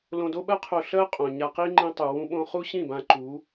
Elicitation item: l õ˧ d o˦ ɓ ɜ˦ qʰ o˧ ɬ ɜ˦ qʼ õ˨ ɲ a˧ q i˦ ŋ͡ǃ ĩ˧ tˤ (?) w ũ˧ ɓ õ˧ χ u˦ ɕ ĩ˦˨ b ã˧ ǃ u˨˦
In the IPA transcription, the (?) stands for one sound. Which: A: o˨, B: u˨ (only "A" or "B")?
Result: B